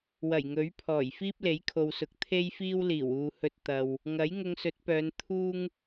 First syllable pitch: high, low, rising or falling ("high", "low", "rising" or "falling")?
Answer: low